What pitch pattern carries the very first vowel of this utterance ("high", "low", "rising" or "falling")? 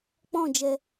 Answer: falling